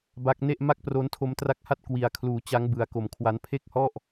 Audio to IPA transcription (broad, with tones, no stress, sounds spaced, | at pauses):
b a˦˥ k̚ n e˥˩ ʔ m a˥˩ k̚ p r o˦˥ n tʰ o˦˥ m t r a˦˥ k̚ h a˥˩ t̚ k w i˧ a̯ kʰ l uː˧ t͡ɕ a˦˥ ŋ b ɯ˧ a̯ k o˧ m kʰ w a˦˥ n pʰ e˥˩ k̚ h ɔ˥˩ ʔ